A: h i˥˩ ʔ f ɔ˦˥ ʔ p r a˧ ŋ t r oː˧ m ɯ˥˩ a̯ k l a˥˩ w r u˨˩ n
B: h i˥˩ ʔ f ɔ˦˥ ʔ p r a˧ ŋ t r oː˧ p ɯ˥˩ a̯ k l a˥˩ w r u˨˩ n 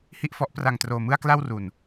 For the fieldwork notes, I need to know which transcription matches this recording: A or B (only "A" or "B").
A